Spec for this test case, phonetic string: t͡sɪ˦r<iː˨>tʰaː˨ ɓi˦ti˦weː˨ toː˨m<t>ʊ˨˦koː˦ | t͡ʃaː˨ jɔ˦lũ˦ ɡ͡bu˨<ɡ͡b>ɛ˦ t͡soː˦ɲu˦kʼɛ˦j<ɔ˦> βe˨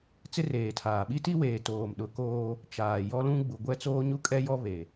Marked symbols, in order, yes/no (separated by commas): no, no, no, yes